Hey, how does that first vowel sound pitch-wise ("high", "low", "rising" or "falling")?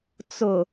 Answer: low